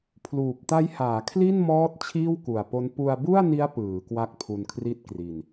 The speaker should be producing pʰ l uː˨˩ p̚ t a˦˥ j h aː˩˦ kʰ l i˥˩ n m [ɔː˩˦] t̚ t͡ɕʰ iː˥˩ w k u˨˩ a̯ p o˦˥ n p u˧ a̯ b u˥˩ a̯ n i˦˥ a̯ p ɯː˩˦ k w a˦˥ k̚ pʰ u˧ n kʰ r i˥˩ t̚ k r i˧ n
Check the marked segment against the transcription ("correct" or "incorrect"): incorrect